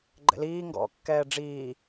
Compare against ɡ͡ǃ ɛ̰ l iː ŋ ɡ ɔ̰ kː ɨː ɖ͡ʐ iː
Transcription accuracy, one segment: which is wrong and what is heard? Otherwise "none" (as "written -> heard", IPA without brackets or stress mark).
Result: ɨː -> ɛː